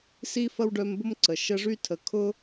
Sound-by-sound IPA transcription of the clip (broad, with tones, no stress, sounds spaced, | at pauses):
s i˥ f ɐ˥ w ɖ œ˦ m b ʊ˥ m ǀ ə˩ ʃ ə˦ ʐ y˥ tʰ ə˨ kʰ ʊ˥